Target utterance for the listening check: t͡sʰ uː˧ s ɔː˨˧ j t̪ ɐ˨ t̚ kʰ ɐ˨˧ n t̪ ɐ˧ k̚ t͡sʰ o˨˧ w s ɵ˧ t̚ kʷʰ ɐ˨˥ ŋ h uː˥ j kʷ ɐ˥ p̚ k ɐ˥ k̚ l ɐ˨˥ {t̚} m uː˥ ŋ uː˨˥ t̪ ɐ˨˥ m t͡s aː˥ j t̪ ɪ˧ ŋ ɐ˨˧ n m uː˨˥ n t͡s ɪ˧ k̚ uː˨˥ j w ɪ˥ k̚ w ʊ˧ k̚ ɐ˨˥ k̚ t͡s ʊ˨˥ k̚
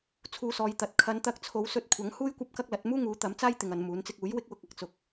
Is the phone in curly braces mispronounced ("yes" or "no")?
no